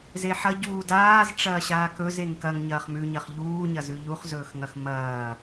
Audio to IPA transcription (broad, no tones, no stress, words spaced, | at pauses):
zeħɐ ɟuːdaːz ʈ͡ʂɐːɕaːkɵz eŋkɐŋ ɲɐːχmʉ ɲɐχʎuːɲɐzʉ ʎuχzɵːxŋɐx mɐː